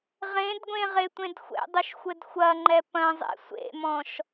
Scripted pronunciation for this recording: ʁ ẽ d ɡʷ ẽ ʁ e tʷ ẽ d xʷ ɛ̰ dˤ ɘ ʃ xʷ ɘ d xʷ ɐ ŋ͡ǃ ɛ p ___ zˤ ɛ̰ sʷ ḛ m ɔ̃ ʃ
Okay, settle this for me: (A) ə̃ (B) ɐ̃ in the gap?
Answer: B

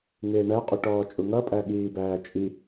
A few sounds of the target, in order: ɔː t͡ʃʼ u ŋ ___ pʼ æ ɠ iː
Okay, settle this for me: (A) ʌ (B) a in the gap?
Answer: A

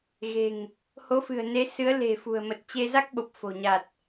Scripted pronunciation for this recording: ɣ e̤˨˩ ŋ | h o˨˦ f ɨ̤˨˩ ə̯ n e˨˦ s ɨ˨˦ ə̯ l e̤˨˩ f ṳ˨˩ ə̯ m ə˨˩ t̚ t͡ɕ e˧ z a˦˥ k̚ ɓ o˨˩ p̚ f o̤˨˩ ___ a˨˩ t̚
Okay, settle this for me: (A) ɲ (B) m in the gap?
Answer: A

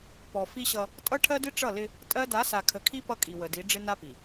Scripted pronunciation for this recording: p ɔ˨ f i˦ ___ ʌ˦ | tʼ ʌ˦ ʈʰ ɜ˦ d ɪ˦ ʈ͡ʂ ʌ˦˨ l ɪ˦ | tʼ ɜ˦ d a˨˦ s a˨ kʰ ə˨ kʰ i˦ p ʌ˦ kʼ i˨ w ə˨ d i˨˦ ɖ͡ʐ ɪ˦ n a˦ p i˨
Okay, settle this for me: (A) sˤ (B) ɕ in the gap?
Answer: B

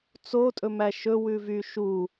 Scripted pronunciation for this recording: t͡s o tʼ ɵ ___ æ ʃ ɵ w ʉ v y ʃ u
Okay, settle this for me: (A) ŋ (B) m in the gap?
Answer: B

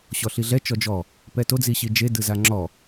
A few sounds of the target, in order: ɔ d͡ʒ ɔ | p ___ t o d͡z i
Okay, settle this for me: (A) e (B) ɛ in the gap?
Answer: B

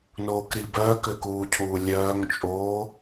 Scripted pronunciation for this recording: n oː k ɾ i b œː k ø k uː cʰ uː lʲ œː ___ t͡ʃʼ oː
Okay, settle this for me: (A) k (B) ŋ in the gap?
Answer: B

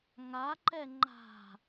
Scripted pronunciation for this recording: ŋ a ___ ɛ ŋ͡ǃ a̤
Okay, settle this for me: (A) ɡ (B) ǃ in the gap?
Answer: B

